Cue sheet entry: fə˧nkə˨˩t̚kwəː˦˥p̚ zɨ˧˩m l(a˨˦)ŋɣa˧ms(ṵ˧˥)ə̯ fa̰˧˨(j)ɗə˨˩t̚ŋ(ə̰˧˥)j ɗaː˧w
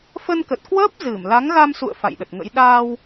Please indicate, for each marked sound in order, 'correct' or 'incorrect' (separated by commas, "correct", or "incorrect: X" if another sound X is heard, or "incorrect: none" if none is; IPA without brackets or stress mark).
correct, incorrect: ṵ˧˨, correct, correct